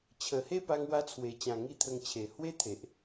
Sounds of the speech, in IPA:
t͡ɕʰ ə˨˩ h e˥˧ p a˧ ŋ w a˧ t͡sʰ w e˨˩ t͡ɕ ã˨˩ ŋ i˥˧ t̪ʰ ə˧ ŋ t͡ɕʰ e˨˩ h w e˦ t̪ʰ e˨ ʔ

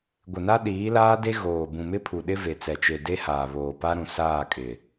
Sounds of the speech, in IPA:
ɡʷ ɪ˨ n a˦ ɗ iː˨˦ l aː˦ d e˦ ɣ oː˨ b ũ˨ m ɪ˦ pʰ u˨ ɗ ɪ˦ v e˨ t͡s ɛ˨ t͡ʃ e˨ d e˦ h aː˨ β oː˨ p a˦ ɾ ũ˨ s aː˦˨ kʼ ɪ˨

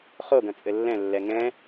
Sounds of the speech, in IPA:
χ o ɡ ɐ̃ t͡sʼ ɘ lː ɛ̃ lː ɛ ŋ ɛ̃

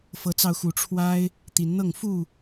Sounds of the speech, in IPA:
f ɤ˨˦ t͡s ɑ˧ ʊ̯ x u˨˦ ʈ͡ʂʰ w a˦ ɪ̯ | t̪ i˨˦ n n̪ ɤ˥˨ ŋ f u˥˨

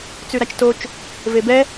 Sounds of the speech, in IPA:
t͡s ʉ ɾ a t͡ʃ t o t͡ʃ | v e b ɛ

